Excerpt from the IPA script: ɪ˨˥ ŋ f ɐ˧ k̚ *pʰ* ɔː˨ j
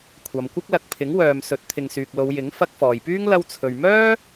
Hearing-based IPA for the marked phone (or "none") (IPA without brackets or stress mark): f